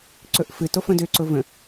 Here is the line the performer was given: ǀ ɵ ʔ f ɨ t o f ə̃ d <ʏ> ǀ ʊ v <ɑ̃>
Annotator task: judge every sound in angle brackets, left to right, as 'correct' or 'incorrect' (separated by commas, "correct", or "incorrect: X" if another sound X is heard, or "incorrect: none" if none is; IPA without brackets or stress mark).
correct, incorrect: ə̃